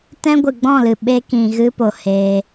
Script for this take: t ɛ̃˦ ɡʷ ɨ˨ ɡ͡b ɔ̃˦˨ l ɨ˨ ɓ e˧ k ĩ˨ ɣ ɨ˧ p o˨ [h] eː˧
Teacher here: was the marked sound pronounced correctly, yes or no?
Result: yes